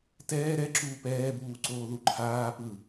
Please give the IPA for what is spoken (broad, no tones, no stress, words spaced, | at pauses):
tɛː ɾɛ ǁuːpɛːbuː ǀoːðuǃʰaː pɯ